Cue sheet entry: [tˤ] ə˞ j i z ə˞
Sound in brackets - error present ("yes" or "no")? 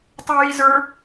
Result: no